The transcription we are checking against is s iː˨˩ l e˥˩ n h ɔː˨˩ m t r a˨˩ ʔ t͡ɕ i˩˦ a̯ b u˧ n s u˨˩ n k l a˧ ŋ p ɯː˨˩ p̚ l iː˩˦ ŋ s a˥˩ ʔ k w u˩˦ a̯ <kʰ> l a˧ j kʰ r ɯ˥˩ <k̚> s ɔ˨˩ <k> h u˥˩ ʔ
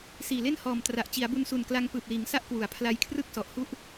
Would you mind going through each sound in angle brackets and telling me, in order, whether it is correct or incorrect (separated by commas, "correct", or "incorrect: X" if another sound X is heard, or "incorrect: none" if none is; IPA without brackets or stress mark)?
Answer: incorrect: pʰ, correct, incorrect: ʔ